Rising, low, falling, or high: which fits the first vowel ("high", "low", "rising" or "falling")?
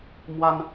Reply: high